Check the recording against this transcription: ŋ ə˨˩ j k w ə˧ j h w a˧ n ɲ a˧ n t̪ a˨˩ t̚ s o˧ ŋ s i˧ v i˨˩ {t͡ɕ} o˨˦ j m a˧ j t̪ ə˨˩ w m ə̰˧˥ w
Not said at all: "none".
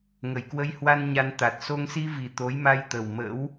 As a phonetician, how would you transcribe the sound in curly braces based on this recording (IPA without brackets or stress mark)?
t̪